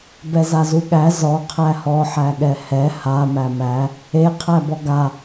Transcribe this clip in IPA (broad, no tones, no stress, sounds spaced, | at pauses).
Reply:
b ɛ z a z u ɠ æ z ɔ qʰ æ h ɔ ħ æ ɠ ɛ h ɛ h a m æ m æ | e qʰ æ b ɔ ɡ a